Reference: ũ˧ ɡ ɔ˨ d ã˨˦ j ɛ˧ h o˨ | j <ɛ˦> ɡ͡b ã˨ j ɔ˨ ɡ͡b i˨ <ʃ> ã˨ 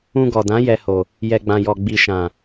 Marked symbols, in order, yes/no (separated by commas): no, yes